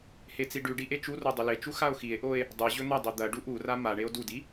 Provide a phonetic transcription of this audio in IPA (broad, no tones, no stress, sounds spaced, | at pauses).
h e t͡s i ɖ ʉ ɖ i ʔ e t͡ʃ u r o dˤ ʉ l e t͡ʃ u x a o̯ x i e̯ ʔ o e̯ | dˤ ɨ ʑ ɵ n̪ ɐ dˤ i d̪ ɐ ɖ u ʔ u r a m a ɳ e o̯ d u d i